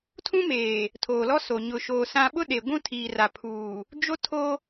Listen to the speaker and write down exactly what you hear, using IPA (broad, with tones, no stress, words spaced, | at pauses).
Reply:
tʰũ˦meː˨ | tʰoː˨lɔ˦so˨ ɲʊ˨ʃoː˨ sã˦ ɓʊ˦ɗe˨ ɡʷũ˦tʰiː˨ra˨pʰuː˨ | d͡ʒo˦tʰo˦